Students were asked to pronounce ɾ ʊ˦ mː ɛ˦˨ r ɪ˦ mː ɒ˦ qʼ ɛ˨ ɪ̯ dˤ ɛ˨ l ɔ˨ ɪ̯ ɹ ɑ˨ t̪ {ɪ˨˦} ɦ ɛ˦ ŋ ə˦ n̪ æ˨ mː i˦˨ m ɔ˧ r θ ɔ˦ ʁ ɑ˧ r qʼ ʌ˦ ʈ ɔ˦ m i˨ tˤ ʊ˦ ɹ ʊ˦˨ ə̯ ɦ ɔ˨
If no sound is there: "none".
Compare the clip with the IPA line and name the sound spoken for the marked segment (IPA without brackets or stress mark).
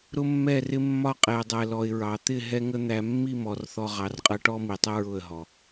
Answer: ɪ˦˨